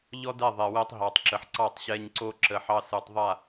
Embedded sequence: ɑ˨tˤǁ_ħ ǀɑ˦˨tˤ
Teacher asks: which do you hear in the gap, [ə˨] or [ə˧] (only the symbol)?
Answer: ə˨